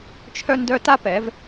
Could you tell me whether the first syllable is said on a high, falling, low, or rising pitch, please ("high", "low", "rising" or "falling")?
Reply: high